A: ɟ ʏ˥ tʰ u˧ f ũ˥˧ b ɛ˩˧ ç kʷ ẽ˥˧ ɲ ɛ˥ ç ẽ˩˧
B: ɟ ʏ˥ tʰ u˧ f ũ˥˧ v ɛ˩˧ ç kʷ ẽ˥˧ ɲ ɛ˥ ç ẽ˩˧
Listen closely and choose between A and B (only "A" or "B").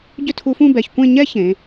A